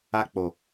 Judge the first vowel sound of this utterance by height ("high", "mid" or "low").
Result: low